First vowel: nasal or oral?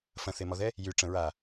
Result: nasal